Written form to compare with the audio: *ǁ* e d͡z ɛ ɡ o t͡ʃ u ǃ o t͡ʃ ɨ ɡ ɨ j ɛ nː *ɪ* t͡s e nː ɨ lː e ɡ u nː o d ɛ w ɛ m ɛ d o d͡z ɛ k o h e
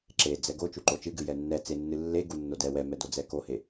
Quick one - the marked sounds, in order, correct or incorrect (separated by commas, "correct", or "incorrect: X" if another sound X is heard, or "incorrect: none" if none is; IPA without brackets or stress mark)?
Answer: correct, incorrect: ɛ